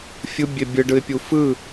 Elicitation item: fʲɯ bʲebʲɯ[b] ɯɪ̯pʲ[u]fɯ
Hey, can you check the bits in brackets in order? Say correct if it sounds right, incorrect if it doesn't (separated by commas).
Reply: incorrect, correct